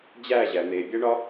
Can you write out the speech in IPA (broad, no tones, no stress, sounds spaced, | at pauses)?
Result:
d͡ʑ æ ʑ æ n̪ e bʲ æ ɳ ɒ